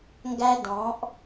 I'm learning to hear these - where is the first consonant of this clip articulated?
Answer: velum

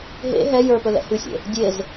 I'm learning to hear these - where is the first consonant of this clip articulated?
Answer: throat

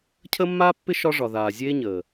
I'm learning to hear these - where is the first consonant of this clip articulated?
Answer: palate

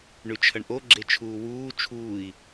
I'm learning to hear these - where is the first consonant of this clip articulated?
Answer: retroflex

